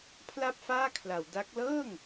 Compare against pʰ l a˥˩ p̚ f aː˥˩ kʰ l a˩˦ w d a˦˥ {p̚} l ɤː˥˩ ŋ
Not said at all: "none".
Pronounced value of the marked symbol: k̚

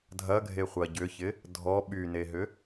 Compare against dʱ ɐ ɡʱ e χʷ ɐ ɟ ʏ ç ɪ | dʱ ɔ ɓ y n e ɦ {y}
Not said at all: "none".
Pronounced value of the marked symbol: ʏ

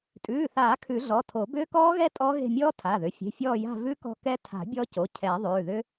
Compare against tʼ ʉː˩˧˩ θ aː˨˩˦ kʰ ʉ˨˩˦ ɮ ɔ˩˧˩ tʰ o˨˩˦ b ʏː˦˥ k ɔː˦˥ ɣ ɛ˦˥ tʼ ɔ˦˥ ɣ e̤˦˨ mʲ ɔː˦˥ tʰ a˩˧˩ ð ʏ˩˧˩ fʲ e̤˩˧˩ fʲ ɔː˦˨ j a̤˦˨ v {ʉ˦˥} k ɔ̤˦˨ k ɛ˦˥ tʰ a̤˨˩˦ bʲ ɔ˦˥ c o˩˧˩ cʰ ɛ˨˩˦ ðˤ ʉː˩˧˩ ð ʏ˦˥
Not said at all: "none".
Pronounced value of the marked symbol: ʉ˦˥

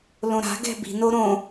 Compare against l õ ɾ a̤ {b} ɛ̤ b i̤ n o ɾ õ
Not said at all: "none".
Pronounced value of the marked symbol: ɡ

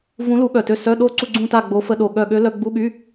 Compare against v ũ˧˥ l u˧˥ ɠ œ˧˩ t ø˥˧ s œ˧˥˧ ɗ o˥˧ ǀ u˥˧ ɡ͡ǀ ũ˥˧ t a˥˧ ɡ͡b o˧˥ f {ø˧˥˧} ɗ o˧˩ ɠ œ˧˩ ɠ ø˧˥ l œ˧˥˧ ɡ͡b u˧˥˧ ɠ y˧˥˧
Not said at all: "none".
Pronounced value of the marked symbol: ə˧˥˧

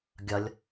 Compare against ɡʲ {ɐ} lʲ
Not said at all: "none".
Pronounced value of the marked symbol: ɐ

